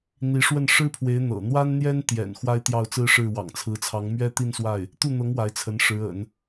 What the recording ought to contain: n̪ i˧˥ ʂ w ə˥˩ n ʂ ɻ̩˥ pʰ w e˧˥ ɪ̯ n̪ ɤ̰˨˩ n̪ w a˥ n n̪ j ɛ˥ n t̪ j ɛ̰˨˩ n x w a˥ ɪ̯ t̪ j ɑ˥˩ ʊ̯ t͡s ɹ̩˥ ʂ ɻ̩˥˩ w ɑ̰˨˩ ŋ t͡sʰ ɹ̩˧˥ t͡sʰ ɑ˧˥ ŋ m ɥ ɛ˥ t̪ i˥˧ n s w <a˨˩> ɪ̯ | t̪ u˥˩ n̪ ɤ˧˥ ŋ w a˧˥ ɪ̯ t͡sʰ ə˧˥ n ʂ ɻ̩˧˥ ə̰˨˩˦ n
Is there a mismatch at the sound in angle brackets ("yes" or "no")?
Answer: yes